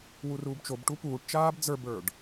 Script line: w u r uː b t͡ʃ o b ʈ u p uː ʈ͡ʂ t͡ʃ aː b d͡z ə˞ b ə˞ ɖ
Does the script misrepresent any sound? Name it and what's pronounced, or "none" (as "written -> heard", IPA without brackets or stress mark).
ʈ͡ʂ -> ʈ